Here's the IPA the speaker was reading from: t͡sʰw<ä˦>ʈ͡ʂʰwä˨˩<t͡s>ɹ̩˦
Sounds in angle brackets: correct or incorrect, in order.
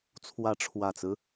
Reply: incorrect, correct

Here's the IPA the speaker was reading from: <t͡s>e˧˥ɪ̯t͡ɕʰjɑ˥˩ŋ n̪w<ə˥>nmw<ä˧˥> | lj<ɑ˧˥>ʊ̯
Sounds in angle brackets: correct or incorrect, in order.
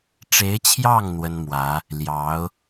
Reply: incorrect, correct, correct, correct

